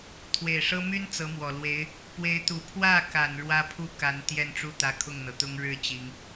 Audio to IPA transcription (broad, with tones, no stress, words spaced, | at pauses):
t̪ʰwe˨˩ɪ̯ʂɤ˥ my˥n t͡sɤ˧˥mwɔ˨˩lwe˧˥ɪ̯ | pwe˧˥ɪ̯t̪u˨˩ pʰwä˥˩ka˨˩n ɻwä˥pʰu˥˩ ka˧˥nt̪jɛ˥˧nʈ͡ʂu˥˩t̪ä˧˥ kʰʊ˥˩ŋn̪ɤ˩t̪ʊ˥ŋ ɻɻ̩˥˩ t͡ɕi˧˥ŋ